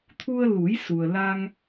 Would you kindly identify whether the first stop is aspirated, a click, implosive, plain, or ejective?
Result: aspirated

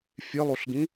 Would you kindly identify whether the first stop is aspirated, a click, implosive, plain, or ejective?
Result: plain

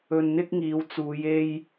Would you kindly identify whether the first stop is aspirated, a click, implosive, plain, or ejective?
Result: plain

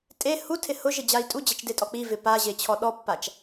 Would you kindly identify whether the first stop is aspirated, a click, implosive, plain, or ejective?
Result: ejective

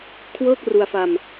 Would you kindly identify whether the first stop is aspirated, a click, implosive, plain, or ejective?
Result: aspirated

